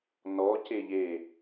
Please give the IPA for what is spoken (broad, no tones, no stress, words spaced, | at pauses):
nɔ ceʎe